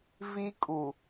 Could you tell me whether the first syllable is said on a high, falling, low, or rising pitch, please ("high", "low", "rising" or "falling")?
high